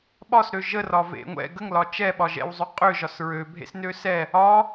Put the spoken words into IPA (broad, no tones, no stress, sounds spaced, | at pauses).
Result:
ɓ ɒ s ɾ ø ʒ ə r ɒ v ḛ ŋʷ ɛ̰ ɡ ə ŋ l ɒ t͡ʃ ɛ ɓ ɒ ʒ ɛ̰ w zˤ ø qʼ ø ʒ ɒ s ɹ ø bʱ ḛ s n ø s ɛ | ɒ